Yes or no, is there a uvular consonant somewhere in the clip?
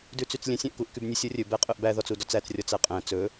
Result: yes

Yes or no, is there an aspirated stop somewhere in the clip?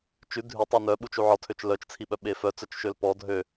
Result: yes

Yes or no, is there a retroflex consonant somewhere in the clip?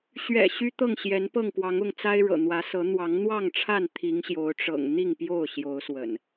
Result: yes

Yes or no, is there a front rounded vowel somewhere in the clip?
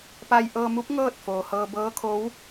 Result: no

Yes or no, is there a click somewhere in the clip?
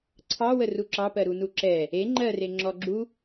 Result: yes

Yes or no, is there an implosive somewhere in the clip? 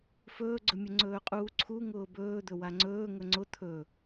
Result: no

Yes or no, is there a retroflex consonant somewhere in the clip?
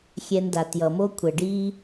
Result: yes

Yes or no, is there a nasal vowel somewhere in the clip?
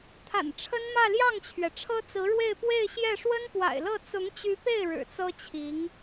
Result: no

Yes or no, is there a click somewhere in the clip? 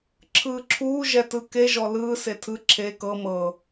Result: yes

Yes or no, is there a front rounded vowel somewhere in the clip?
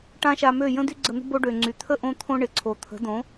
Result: yes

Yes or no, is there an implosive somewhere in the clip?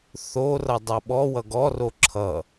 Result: yes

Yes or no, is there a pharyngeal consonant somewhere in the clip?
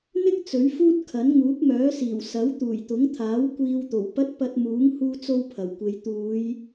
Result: no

